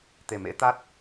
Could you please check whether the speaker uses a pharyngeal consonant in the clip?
no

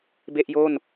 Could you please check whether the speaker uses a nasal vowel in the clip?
no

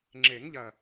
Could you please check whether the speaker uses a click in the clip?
yes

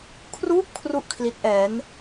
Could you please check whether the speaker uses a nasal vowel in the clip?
no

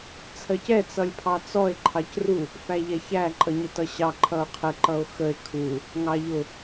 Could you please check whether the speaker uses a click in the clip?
yes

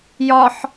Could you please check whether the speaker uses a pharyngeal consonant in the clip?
yes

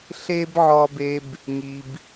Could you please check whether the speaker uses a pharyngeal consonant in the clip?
yes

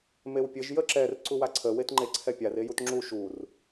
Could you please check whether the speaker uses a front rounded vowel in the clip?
no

